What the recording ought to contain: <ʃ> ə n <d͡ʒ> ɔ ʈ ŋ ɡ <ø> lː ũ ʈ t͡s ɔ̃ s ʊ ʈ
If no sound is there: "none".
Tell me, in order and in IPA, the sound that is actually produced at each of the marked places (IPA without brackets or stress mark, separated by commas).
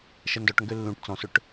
ʃ, d, ø